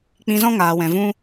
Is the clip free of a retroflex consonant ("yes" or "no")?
yes